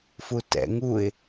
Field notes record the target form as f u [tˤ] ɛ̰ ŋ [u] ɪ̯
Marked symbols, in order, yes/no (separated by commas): no, yes